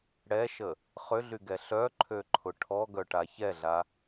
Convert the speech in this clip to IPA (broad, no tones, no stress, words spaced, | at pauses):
ɽɛʃə | χʏɮyɡɛ ɬœǃʰøǃʰʊ ʈʰɔɡœʈa çɛɮa